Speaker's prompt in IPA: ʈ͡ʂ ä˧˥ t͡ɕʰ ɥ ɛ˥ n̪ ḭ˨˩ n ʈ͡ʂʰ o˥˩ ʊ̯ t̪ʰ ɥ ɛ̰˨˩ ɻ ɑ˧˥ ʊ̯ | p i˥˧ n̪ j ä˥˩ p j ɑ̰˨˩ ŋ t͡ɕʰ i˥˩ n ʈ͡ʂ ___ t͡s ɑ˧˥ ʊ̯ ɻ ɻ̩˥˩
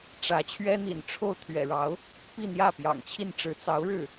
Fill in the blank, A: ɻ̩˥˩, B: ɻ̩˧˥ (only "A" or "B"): B